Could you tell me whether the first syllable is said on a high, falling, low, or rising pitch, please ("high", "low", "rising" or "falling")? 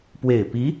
low